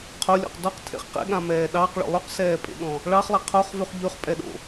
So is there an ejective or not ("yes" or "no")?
yes